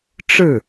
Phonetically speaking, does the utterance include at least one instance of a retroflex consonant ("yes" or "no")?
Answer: yes